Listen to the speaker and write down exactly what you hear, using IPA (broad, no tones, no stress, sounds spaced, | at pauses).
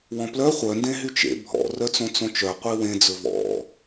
w ɔ̃ p l œ χʷ œ n d ẽ ɦ y t͡ʃ ḛ bʱ ɔ̰ r œ t͡s õ t͡s õ t͡ʃ œ qʷ i w ẽ d͡z ɵ v ɔ̰